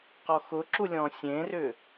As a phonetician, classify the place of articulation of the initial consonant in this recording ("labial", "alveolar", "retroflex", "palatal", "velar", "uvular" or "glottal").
uvular